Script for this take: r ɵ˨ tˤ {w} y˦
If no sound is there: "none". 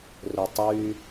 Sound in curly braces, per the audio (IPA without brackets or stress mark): w